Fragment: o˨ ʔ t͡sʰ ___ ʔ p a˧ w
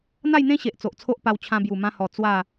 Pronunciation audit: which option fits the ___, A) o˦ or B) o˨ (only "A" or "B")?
A